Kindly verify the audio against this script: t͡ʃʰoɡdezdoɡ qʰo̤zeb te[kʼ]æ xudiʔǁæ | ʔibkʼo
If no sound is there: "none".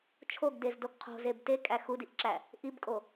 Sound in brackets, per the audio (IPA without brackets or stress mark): kʼ